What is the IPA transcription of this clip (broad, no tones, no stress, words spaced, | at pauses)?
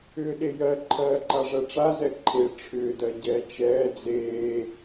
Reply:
ʏːɗejɜ ǃʰɜːǃaʐɜʈ͡ʂa zɛǃʰe ʈ͡ʂʰʏːdɜ ɟɛːt͡ʃɛː d͡zeː